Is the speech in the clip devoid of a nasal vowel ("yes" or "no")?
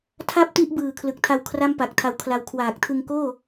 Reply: yes